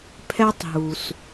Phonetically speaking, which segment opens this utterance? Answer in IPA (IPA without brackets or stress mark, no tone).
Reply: pʰ